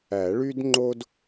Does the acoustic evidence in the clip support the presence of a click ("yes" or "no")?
yes